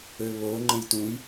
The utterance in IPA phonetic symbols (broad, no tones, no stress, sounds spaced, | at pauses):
ø β o ŋ͡ǃ ə̃ j t ũ j